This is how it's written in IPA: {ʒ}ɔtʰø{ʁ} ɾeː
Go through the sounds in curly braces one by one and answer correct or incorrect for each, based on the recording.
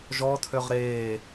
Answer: correct, correct

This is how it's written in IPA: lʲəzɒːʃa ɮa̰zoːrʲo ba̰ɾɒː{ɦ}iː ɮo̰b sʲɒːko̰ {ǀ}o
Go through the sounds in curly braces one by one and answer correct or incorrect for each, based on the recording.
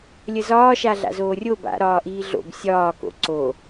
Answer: incorrect, correct

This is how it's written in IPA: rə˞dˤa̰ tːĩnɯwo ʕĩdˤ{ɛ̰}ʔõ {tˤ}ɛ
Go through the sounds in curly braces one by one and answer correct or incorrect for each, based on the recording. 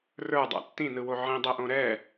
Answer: incorrect, incorrect

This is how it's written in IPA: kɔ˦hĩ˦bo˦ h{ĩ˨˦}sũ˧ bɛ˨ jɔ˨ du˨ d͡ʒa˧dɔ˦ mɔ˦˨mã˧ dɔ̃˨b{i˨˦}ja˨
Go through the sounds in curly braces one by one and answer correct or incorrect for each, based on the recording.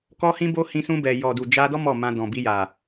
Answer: incorrect, incorrect

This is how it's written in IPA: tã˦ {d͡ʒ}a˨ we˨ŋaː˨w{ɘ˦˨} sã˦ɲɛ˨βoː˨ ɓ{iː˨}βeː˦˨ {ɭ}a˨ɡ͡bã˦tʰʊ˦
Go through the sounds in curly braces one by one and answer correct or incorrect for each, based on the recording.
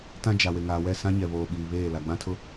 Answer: correct, incorrect, correct, incorrect

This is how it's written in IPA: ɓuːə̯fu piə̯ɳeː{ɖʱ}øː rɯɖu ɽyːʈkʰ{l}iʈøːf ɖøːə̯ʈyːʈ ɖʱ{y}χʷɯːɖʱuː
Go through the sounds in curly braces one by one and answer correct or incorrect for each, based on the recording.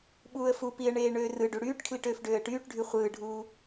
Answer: incorrect, correct, correct

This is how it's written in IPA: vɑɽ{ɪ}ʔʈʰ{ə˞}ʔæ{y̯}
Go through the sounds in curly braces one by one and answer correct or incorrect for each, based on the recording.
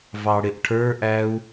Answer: correct, correct, incorrect

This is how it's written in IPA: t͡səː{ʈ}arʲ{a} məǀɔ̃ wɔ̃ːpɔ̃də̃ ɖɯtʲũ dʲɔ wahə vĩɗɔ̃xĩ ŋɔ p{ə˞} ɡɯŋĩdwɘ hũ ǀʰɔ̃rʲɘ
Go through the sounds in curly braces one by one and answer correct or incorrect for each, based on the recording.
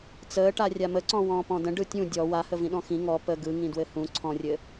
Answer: correct, correct, incorrect

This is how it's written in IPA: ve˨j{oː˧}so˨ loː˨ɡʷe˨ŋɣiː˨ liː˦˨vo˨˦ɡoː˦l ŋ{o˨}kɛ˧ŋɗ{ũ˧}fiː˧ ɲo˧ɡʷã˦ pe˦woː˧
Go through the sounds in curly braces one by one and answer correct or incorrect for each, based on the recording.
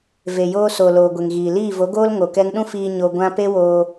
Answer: correct, correct, incorrect

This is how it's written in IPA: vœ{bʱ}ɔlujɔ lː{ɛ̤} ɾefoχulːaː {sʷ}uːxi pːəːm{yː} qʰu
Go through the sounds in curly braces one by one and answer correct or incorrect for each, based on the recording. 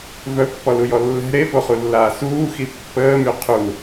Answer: incorrect, correct, incorrect, incorrect

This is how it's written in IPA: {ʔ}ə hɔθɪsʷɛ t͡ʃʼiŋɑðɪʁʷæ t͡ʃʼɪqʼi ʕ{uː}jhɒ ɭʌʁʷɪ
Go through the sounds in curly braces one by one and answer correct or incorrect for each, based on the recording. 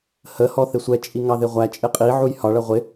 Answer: incorrect, incorrect

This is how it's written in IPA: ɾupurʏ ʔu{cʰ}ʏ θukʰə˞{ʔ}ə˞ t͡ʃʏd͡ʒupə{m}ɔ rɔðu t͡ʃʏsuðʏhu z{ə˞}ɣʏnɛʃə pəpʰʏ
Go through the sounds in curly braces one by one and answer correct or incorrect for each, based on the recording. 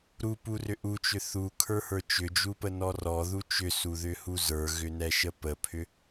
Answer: incorrect, incorrect, incorrect, correct

